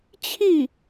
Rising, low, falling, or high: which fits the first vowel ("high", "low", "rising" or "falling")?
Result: falling